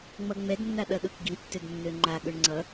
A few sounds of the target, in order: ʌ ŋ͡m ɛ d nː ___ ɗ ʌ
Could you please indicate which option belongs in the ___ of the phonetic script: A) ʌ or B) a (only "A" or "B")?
B